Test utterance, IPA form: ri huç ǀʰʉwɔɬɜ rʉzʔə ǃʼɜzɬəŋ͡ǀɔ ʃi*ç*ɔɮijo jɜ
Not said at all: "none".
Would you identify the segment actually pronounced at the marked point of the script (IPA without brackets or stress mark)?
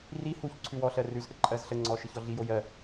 ç